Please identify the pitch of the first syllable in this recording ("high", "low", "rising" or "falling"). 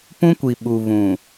high